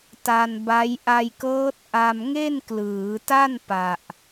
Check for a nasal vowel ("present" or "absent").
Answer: absent